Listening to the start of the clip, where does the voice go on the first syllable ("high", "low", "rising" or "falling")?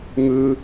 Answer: high